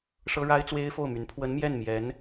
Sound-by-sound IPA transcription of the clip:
ʂ ɤ˥ ɻ a˥ ɪ̯ t͡s w e˥ ɪ̯ f o˥˩ ʊ̯ m y˧˥ n pʰ w ə˧˥ n m j ɛ˥˩ n m j ɛ˧˥ n

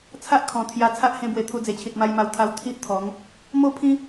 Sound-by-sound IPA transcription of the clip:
t͡sʰ a˦ ʔ kʰ ɔ̃˨˩ t̪ʰ j a˧ t͡sʰ a˦ ʔ h ẽ˧ b w e˨˩ t̪ʰ u˧ d͡z e˨˩ t͡ɕʰ i˨ t̚ m a˧ j m a˧ w t̪ʰ a˧ w t̪ʰ i˦ ʔ t̪ʰ ɔ˨˦ ŋ | m o˥˧ pʰ ĩ˦

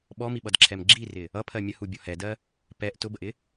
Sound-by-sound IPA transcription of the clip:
ɓ ɔ m i ɓ ʌ d ǁʰ ɛ m ɡ͡ǁ i r ɪ | ʌ pʰ ɜ mʲ ə h u bʲ ɔ h ɛ d ɜ | p ɛ ʔ t ʊ b ə ʔ ɪ

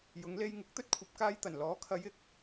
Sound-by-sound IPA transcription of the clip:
j ʊ˨˧ ŋ l e˧ j ŋ ɪ˨˥ k̚ t̪ ɵ˥ t̚ kʷʰ ɐ˨ p̚ k aː˧ j t̪ ɐ˨˩ n l ɔː˨˥ kʰ ɐ˨˧ j ɪ˨˥ k̚

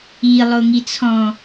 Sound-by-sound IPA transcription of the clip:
i lˠ o ŋ i t͡sʰ ɔ̃

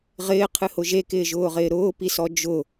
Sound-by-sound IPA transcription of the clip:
ʁ ɪː qʰ ɨ h ʊ ʒ e k ɪː ʒ ʊː ʁ ɪː ɾ ʊː p i s ɔ d͡ʒ ʊ

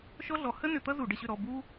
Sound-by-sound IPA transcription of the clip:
ʃ ɔ˥ ɮ ɔ˧˩˧ h ə˥ n ʏ˧˩˧ t̪ ʌ˥ z u˧˩˧ ɖ ə˧˩˧ ɕ ʏ˦˨ ɾ ɔ˦˨ b u˥

